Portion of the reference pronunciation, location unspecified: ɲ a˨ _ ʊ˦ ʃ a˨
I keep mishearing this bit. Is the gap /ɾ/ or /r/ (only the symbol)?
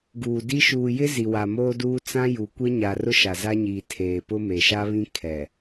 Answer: r